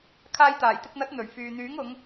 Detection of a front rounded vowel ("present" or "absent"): present